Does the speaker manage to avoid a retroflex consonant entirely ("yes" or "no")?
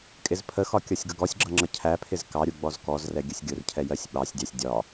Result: yes